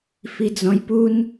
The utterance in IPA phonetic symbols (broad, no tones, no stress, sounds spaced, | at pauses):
f i d͡z ɔ̃ j p u n